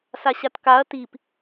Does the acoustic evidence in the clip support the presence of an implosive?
no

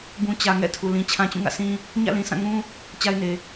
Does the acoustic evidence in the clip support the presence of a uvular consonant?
no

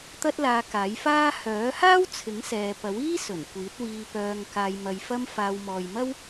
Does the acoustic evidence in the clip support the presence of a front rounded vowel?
yes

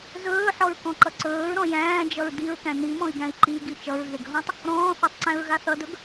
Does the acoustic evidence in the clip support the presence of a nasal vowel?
yes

